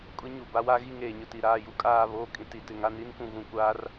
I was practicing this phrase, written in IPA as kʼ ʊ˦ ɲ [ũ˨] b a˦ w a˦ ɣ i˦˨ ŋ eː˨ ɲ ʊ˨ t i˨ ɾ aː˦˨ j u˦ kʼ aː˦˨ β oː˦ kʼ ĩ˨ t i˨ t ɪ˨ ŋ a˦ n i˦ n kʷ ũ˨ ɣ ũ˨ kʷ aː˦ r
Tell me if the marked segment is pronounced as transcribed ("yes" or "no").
no